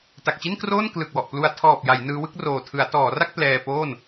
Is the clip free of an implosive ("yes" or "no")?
yes